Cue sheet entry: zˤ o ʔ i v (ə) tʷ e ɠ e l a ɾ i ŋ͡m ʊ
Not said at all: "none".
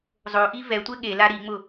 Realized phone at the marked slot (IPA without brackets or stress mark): ɛ